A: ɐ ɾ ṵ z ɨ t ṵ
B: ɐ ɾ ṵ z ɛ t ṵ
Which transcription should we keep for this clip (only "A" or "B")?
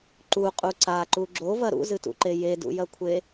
A